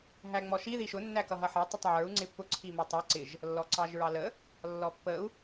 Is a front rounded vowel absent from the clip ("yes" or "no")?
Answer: yes